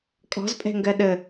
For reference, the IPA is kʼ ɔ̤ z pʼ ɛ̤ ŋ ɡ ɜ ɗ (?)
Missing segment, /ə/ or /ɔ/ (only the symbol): ə